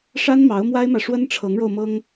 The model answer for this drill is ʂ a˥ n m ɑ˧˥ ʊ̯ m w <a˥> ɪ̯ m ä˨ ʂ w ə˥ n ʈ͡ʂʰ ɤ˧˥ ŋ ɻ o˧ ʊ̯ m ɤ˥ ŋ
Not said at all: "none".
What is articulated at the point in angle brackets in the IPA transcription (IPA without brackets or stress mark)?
a˥